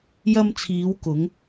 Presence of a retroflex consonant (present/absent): absent